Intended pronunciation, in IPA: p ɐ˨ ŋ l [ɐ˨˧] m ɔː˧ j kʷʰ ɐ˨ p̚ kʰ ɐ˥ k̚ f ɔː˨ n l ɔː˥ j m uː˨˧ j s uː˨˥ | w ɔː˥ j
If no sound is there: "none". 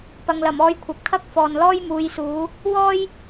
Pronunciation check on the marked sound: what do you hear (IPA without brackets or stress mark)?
ɐ˨˩